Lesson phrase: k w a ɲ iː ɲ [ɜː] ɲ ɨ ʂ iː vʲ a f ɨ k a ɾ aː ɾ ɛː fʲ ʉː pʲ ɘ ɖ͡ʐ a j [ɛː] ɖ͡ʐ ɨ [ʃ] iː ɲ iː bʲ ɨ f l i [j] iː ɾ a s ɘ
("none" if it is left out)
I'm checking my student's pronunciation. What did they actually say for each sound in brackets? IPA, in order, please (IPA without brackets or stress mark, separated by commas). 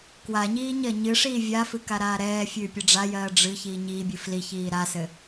ɜ, ɜː, ç, ç